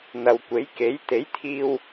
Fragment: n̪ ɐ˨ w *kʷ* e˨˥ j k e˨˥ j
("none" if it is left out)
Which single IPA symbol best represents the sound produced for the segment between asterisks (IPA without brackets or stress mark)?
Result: kʷ